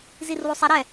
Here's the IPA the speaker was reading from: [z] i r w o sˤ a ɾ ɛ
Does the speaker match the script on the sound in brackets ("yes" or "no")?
yes